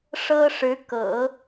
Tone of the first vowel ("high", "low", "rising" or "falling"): high